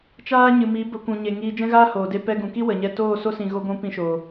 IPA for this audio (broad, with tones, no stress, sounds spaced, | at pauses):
t͡ʃ aː˦ ɲ ɨ˨ m i˨˦ b ə˧ kʷ ũ˨ ɲ e˨ ŋ iː˧ d͡ʒ ɛ̃˦ ɣ aː˦ h oː˨ d e˧ p ɛ˧ ɡ ũ˨ k i˦ w ə˨ ɲ ɛ˧ t oː˦˨ s o˦ s ĩ˨ ɣ o˧ ɡʷ ũ˧ p ĩ˦ ʃ o˨